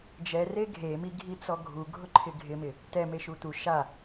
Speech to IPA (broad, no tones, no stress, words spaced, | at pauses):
d͡ʒɛre ɡʱemi ɡʱit͡sɔɡʱu ɡʱʊǃʰɪɡʱɪmɪ | tɛme ʃut̪u ʃa